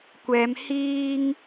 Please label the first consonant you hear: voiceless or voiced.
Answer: voiceless